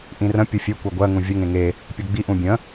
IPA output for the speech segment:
ʔĩrə̃ pʲɯfʲe kʷɜɡʷɜ ŋũvʲə ŋẽŋe | pʲoɡ͡bi ʔũbʲə̃

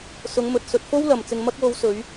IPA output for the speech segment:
sʊ˨˧ŋmɵ˨t̚ sɵ˧t̚ fo˥wlɐ˨mt͡sɪ˧ŋ mɐ˧k̚wo˨˧wsɵ˨˧ɥ

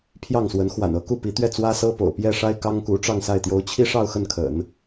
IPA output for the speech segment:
pʰjɑ˥˩ŋswə˧˥n xwa̰˨˩nɤ˧˥ ku˥˩pi˧˥t̪ɥɛ˥˩ t͡swä˥sɤ˥po̰˨˩ʊ̯ pjɛ˥˩ʂa˥ɪ̯ kɑ˥ŋku˧˥ʈ͡ʂɑ˥˧ŋsa˥˩ɪ̯ t̪jo˧˥ʊ̯t͡ɕʰi˥ʂɑ˥˧ʊ̯ xə˥˩nkʰə̰˨˩˦n

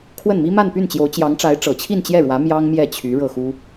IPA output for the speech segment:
kʰwə˥˩nmi˥ ma˥˧npy˥˩nt͡ɕjo˧˥ʊ̯ t͡ɕjɑ˧˥ŋʈ͡ʂa˧˥ɪ̯ ʈ͡ʂɤ˨˩t͡ɕʰi˥˧nt͡ɕjɛ˥˩ɻwä˧˥ mjɑ˥ŋmjɛ˥˩t͡ɕʰy˧˥ ɻɤ˥˩xu˥

